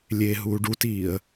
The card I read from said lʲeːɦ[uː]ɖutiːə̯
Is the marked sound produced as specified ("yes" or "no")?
yes